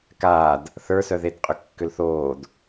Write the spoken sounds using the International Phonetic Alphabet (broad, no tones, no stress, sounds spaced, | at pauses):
k aː d | θ ə˞ s œ ð e d qʼ ʏ kː ʏ l θ oː d